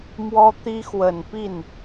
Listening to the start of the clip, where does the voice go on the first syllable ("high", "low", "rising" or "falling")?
high